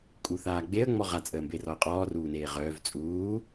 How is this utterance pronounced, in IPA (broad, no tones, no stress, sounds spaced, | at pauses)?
kʼ u θ aː ɡ͡b e ə̯ ŋ͡m ɔ ʁ a t͡sʼ əː m b e r ɔ ə̯ qʼ ɔː r uː n eː ʁ œː v t͡sʼ uː